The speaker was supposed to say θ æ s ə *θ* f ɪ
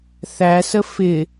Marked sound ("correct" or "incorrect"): incorrect